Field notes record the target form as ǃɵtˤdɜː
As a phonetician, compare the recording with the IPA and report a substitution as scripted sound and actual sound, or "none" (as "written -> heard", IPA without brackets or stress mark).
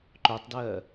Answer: ɵ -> œ